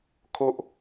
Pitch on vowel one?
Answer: high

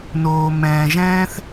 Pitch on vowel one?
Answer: low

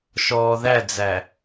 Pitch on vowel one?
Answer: low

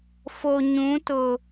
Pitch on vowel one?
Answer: low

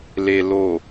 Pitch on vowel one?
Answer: low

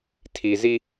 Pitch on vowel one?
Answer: low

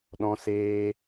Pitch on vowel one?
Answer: high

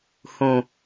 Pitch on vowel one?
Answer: low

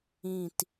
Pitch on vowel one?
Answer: low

